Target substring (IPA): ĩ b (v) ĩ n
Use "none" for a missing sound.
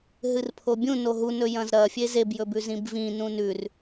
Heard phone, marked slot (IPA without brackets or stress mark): v